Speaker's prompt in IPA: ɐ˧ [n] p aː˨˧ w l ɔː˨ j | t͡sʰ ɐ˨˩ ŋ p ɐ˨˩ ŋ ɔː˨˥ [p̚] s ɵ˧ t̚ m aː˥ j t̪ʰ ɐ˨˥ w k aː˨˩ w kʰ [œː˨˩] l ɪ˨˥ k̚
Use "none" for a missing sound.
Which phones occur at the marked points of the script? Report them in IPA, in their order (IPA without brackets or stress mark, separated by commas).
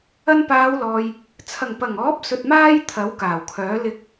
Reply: n, p̚, œː˨˥